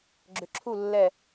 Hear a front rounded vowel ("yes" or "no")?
yes